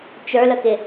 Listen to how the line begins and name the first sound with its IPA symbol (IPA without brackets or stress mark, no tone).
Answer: t͡ʃ